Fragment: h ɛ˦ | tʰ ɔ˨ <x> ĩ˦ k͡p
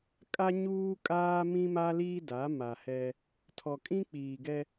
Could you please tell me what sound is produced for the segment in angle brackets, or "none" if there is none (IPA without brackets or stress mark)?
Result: kʼ